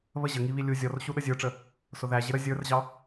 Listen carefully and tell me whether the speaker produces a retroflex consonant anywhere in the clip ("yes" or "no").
yes